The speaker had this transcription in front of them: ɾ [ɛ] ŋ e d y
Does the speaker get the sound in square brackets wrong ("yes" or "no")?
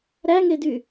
yes